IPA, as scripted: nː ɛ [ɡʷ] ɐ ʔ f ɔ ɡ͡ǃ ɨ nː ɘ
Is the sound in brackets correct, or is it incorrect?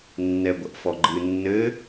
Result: correct